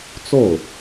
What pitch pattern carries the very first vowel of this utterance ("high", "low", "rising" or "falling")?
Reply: falling